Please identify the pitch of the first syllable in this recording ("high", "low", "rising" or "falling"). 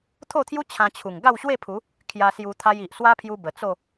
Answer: falling